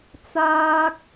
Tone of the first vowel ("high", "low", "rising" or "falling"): high